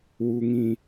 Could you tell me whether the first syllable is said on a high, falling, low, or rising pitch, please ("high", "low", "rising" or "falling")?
low